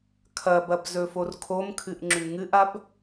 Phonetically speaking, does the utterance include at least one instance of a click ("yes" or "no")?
yes